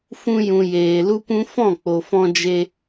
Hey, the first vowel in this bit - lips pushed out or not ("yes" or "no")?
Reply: yes